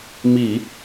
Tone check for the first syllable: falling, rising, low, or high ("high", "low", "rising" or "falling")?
low